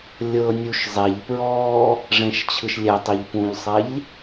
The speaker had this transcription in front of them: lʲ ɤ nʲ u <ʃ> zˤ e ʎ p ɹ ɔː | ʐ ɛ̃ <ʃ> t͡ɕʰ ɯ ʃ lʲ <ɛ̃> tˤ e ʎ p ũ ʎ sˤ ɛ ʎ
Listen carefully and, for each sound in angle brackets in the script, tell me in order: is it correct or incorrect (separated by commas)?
correct, correct, incorrect